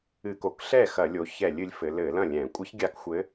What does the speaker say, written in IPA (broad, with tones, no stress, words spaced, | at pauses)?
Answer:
ɨ˧˩˧ko˩˧k ɬɛ˥˩xɐ˧˩˧lʲo˩˧çɛ˧˩˧lʲ ɨ˩˧lʲfɘ˩˧ lɘ˧˩˧lɐ̃˥˩lʲɛ̃˧˩˧ kʷʼɨ˧˥çɡʲa˧˥k xʷɘ˧˥